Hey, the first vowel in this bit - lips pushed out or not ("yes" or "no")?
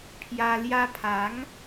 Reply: no